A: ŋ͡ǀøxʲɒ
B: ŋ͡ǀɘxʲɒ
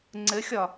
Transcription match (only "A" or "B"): B